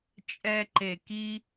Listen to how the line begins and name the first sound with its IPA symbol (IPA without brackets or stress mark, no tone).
t͡ʃʼ